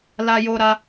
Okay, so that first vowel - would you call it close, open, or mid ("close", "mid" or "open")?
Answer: open